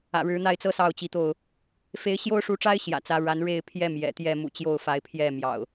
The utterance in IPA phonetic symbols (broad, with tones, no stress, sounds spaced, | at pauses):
ä̰˨˩ ɻ ɻ̩˨˦ n̪ a˥˨ ɪ̯ t͡s ɤ˦ s ɑ˥˨ ʊ̯ t͡ɕ i˨˦ t̪ o˥˨ ʊ̯ | f e˨˦ ɪ̯ ɕ j o˦ ʊ̯ ʂ u˨˦ ʈ͡ʂ a˦ ɪ̯ ɕ j ä̰˨˩ t͡s ä˨˦ ɻ a˨˦ n ɻ e˥˨ ɪ̯ pʰ j ɛ˦ m j ɛ̰˨˩ t̪ j ɛ˥˨ m ṵ˨˩ t͡ɕ j o˥˨ ʊ̯ f a˨˦ ɪ̯ pʰ j ɛ˥˨ m j ɑ̰˨˩ ʊ̯